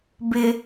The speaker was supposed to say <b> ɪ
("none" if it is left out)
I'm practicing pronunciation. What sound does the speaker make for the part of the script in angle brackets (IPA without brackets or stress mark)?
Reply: b